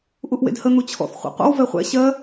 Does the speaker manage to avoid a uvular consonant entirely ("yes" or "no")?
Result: no